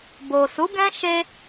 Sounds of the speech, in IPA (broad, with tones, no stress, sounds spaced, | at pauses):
b o˨ s u˨˦ ɡ ɛ̃˦ ʃ e˧